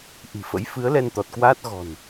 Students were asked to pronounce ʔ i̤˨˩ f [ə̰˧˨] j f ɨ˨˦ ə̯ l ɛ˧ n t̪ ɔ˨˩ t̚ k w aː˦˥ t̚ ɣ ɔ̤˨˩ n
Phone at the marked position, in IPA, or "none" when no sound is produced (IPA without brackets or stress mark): ə̰˧˥